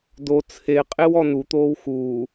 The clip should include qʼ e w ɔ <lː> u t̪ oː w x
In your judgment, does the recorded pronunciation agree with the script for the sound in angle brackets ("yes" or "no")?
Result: no